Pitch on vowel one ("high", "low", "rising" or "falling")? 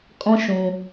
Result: high